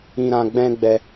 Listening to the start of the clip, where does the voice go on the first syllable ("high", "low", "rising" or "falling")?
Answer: high